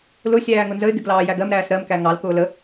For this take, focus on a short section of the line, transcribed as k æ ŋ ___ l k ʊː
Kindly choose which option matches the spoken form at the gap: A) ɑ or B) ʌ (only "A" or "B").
A